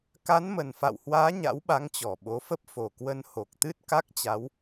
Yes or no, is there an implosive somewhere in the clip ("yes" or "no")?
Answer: yes